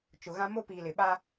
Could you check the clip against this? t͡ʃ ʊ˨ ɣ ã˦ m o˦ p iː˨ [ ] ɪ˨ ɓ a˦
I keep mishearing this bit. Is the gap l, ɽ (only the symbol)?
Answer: l